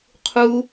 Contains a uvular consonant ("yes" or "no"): yes